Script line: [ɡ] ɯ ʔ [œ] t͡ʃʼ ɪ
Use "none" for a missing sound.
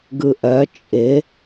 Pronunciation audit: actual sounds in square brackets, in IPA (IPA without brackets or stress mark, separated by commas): ɡ, œ